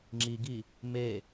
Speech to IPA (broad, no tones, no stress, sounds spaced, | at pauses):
ŋ͡ǁ i ɡ i | m e